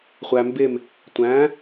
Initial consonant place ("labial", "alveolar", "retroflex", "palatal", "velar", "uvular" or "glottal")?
uvular